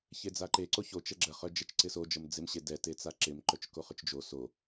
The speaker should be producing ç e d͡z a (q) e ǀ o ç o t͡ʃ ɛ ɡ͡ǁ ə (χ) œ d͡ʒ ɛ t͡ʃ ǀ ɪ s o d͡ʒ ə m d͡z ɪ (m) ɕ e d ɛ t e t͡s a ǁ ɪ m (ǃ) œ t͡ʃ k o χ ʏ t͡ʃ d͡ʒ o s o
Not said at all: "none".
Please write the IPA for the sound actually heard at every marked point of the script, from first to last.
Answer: ǃ, χ, m, ǃ

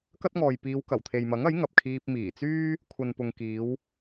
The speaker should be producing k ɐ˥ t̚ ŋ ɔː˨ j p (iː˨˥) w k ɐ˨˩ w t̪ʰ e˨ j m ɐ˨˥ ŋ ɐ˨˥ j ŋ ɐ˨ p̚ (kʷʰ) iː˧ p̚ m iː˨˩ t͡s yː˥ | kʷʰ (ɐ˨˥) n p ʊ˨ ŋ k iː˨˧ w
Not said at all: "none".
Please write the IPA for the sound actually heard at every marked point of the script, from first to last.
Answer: iː˨˧, kʰ, ɐ˨

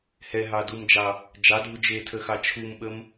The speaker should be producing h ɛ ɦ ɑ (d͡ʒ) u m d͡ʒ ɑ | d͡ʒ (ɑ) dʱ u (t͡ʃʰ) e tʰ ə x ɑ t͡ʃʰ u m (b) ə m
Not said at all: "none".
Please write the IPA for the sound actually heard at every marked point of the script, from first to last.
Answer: d, ɑ, d͡ʒ, ɓ

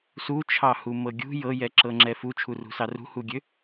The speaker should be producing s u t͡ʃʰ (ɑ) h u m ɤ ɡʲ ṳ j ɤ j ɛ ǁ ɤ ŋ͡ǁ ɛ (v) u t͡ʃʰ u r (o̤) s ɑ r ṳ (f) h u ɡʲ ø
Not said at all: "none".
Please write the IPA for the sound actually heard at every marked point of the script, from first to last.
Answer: ɑ, f, ṳ, none

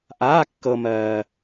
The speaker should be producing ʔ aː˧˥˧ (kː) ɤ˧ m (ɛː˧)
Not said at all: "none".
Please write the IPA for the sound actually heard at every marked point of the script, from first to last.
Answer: kː, ɜː˧

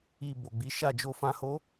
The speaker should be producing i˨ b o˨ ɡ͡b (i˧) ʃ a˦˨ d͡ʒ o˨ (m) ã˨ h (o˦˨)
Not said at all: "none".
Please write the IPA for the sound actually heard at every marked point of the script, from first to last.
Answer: i˨˦, f, o˨˦

